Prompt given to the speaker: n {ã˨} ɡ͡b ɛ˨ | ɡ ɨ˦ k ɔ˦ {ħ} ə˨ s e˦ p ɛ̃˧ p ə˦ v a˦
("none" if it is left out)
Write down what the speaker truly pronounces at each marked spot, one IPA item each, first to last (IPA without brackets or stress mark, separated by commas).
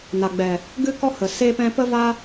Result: a˨, h